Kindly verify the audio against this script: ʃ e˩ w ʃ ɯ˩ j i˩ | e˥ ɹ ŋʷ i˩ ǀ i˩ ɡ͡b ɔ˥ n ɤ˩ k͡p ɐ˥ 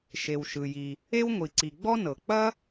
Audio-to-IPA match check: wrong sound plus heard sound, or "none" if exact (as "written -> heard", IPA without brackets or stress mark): ɹ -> w